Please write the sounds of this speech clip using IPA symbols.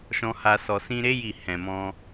ʃ ɔ̃˧ h a˧ s ɔ˨ s ĩ˧ ɾ e˦ j i˦˨ h ɛ̃˨ m ɔ̃˧

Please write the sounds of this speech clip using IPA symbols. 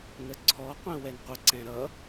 n ə ǀʰ ɔ qʷ ɛ̃ w ɛ n qʷ ə ǀ ɛ̃ ɾ ʌ

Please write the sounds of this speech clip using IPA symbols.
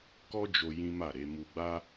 k ɔ˦ d͡ʒ o˧ j ĩ˦ m a˦˨ ɾ e˨˦ m u˧ ɡ͡b a˦

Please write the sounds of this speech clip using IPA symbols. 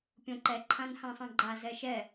pʲ õ ǃ ɛ ǃʰ ã n h ã sˤ ã ɡ͡ǃ a z ɛ ʃ ɛ

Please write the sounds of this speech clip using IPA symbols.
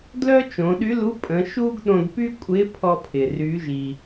d l œ˥ t͡ʃ õ˩˧ ɗ y˧˥ l u˧˥ pʼ ə̃˩˧ ʃ u˥ ɡ ɗ õ˧ d p y˥ kʷʼ ɪ˧˥ pʰ ɔ˧ pʰ ɪ˩ r y˩˧ ʒ i˩

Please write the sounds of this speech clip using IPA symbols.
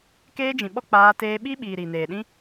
k eː˦ d͡ʒ ĩ˨ ɓ ɔ˦ k͡p aː˧ t eː˧ ɓ i˦ ɓ iː˨ ɾ i˨ n eː˨ ɗ ĩ˦

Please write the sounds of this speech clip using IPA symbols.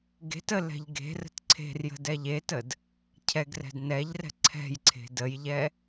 ɡ e̤ t ə l ɛ̤ ʎ ɡ e̤ r ə̤ t ǀʰ e̤ r j ə̤ d ɛ ʎ e t ə d | cʰ ɛ ɡ r ɛ̤ d n ɛ ʎ r ɛ̤ ǀʰ ɛ̤ j ǀʰ e̤ d ə j ʎ ɛ

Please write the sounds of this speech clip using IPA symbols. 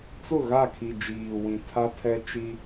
t͡s ʊ˦˨ ɣ a˦˨ kʰ i˨ d͡ʒ iː˨ w ĩ˨ tʰ a˦ tʰ ɛ˦ t͡ʃ i˦

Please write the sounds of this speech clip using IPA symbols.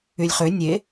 y lʲ χ ø nʲ e

